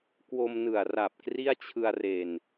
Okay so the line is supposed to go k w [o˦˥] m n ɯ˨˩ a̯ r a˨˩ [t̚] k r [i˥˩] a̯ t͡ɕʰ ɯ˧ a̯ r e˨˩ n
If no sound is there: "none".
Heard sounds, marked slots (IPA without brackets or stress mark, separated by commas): o˧, p̚, i˥˩